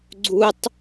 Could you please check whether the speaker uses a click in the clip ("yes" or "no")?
yes